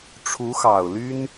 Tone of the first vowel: rising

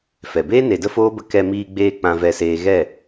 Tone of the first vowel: low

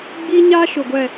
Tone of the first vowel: high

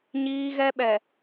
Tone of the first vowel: low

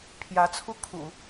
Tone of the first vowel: rising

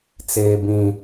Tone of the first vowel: low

